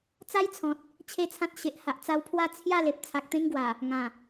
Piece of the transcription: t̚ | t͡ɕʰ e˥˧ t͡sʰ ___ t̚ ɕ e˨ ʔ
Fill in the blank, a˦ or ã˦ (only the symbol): ã˦